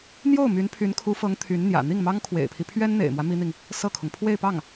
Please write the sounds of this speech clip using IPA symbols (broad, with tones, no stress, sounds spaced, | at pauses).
n̪ j o˥˩ ʊ̯ m y˧˥ n pʰ y˧˥ n kʰ u˧˥ f ɤ˧˥ ŋ t̪ʰ y˧˥ n n̪ j ä̰˨˩ n̪ i˥˩ ŋ m ɑ˥ ŋ kʰ w ḛ˨˩ ɪ̯ pʰ i˦ pʰ ɥ ɛ˥ n n̪ ḛ˨˩ ɪ̯ m w ä˦ m i˥ n̪ i˨ ŋ | s ɤ˥˩ kʰ ʊ˩ ŋ pʰ w e˥˧ ɪ̯ p ɑ˥˩ ŋ